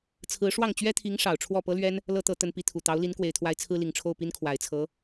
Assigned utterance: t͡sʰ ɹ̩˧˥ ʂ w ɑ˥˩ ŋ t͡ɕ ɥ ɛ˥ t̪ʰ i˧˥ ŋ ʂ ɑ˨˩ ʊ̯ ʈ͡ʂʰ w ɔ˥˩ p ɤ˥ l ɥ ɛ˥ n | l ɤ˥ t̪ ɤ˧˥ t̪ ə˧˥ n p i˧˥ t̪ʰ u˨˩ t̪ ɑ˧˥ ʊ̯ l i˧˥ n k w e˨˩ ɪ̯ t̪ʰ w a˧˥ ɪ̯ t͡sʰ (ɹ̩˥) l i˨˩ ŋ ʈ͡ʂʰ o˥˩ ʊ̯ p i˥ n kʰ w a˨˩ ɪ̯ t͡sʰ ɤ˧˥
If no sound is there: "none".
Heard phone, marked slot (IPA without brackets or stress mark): ɹ̩˥